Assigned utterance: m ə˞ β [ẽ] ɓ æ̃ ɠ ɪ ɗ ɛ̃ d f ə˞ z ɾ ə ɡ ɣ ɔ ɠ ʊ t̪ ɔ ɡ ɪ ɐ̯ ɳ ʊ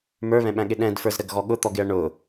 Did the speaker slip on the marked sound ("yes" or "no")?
yes